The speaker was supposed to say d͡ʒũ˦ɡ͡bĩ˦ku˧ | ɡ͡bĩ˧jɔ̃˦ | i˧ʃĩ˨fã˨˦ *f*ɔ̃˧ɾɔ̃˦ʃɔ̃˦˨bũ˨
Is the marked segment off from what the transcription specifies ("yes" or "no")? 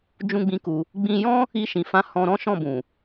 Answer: yes